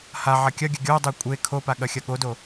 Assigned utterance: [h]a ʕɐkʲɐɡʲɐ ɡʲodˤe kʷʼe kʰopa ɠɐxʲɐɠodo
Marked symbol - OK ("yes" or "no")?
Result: yes